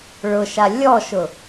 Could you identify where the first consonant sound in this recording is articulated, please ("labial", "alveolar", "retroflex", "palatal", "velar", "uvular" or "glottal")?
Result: retroflex